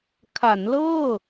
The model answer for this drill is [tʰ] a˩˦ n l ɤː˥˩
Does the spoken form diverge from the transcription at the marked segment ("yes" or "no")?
yes